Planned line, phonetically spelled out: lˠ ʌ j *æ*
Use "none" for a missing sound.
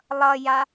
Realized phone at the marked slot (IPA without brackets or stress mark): a